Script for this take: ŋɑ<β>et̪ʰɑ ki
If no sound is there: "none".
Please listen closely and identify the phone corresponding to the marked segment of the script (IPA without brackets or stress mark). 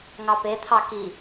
p